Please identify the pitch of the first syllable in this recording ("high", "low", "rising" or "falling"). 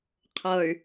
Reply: low